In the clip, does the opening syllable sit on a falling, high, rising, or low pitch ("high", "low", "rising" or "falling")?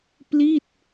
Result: falling